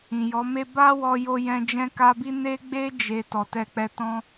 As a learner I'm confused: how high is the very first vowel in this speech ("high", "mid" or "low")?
high